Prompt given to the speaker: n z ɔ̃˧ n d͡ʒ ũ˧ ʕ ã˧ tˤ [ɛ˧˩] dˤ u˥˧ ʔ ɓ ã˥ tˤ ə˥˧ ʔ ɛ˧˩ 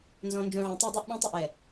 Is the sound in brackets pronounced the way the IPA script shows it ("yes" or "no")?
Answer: no